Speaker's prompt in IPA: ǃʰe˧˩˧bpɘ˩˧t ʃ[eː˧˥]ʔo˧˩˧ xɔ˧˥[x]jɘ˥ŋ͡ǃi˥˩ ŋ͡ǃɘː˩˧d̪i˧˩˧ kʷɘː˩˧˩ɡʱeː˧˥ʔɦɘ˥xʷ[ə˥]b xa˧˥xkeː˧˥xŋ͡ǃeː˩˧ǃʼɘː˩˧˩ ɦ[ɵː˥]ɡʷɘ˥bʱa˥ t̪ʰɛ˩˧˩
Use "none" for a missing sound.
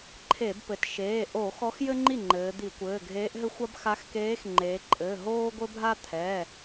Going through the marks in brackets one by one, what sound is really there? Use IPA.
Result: eː˩˧˩, x, a˥, oː˥

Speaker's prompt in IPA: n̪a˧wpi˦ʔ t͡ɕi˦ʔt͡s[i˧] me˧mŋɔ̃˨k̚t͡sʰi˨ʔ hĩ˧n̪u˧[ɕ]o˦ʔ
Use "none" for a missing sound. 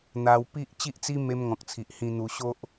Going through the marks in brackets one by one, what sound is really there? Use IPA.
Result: i˦, ɕ

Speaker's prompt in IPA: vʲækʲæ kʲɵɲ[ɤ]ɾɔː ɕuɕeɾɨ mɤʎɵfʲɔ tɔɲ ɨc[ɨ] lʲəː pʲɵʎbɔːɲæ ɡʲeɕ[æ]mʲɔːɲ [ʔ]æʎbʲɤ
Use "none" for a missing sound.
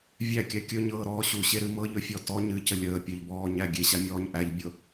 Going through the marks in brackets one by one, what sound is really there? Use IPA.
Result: ɤː, ə, a, ʔ

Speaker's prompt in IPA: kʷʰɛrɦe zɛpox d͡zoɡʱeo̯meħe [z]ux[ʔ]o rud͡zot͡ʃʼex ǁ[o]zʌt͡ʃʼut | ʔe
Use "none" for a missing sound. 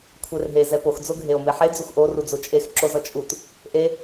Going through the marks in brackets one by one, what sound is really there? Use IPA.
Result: d͡z, ʔ, o

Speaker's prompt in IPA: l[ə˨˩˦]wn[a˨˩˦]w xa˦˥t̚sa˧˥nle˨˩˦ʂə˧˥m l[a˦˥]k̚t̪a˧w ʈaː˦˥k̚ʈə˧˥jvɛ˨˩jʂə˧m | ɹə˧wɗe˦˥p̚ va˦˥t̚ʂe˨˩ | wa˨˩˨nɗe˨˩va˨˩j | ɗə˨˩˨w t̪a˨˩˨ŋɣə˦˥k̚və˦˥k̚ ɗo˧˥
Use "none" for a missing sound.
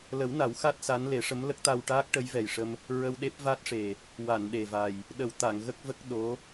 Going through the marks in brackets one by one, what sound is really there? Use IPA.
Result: ə˨˩˦, a˨˩˦, ə˦˥

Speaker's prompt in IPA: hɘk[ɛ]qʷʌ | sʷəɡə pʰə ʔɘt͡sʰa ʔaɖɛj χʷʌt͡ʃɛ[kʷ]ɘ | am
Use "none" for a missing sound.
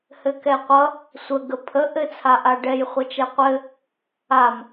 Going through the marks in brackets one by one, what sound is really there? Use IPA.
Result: ɛ, qʷ

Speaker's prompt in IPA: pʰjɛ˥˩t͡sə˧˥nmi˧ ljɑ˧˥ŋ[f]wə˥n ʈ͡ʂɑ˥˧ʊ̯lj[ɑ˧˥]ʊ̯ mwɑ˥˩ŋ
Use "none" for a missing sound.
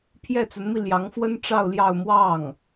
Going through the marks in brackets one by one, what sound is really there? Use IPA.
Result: f, ɑ˥˧

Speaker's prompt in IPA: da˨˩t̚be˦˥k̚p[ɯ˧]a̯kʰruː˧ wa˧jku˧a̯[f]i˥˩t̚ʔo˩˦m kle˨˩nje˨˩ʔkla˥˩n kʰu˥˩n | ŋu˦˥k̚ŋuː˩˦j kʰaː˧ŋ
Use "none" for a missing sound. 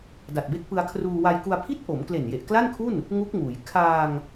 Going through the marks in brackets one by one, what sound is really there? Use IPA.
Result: ɯ˧, pʰ

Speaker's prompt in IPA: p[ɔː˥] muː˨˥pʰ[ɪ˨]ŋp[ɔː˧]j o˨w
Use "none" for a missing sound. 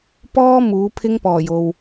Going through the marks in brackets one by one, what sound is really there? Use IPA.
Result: ɔː˥, ɪ˥, ɔː˨˩

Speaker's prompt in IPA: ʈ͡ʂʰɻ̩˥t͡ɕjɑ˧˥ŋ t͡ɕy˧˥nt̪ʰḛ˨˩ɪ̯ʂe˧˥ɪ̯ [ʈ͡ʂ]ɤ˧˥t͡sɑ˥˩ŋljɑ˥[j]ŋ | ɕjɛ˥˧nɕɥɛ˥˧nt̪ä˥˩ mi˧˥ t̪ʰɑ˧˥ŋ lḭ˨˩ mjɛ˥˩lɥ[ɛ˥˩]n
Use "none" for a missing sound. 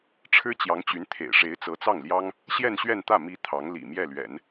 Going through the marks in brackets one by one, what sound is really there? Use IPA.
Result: t͡s, none, ɛ̰˨˩˦

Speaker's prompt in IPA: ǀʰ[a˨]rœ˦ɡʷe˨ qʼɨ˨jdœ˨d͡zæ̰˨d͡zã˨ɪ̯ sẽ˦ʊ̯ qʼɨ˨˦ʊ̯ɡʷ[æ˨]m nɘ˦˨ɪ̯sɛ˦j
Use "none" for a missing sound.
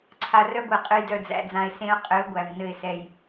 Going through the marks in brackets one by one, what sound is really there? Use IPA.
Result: a˨, æ˨

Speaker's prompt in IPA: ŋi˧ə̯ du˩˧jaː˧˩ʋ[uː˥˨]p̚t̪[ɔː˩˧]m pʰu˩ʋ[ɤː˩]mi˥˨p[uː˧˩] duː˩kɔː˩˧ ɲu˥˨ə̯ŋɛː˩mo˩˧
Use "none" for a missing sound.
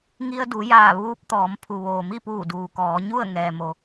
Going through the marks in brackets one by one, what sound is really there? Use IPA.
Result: uː˧, ɔː˩˧, oː˩, uː˧˩

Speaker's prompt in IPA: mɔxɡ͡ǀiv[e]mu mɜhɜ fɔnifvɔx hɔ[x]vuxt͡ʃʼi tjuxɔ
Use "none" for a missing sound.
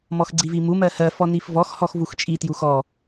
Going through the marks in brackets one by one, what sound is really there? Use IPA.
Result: i, x

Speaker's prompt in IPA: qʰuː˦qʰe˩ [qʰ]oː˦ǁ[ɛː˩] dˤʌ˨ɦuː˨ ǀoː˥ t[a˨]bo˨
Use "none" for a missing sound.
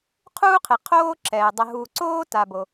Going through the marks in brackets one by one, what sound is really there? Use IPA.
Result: qʰ, ɛː˩, a˨

